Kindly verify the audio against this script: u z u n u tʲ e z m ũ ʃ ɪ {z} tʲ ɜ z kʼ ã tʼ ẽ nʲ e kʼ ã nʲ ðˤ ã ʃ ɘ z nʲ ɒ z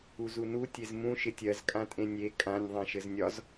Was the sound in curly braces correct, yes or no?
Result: no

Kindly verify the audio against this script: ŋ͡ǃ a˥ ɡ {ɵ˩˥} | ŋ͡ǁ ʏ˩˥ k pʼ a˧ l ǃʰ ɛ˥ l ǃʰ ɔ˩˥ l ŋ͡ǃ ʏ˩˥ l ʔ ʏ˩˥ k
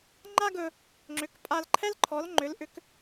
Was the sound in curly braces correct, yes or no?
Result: no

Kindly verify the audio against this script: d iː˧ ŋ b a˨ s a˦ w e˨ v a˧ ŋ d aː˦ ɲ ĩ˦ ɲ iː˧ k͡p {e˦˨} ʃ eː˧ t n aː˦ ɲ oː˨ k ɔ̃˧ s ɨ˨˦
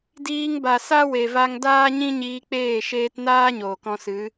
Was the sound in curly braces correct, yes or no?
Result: no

